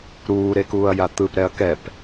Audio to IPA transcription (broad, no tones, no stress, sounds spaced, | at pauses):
ɾ uː ɾ e k uː ɐ̯ j a t̪ ɯ p ɾ ɛ ɐ̯ k ɛ p